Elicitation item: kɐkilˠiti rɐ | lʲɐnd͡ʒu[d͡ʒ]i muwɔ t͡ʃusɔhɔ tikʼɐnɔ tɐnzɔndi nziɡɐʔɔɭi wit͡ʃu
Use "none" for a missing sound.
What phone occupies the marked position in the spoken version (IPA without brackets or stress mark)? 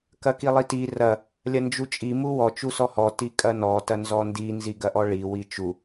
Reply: t͡ʃʼ